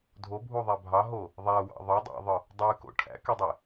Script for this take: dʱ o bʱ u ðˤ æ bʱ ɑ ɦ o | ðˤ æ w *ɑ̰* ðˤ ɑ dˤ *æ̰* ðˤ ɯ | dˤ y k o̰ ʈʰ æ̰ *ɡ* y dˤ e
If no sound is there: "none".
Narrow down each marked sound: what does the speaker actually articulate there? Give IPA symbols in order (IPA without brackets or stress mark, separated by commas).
ɑ̰, æ̰, k